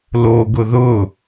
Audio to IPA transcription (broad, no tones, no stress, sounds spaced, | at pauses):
l o ɡ ʊ ð ʊ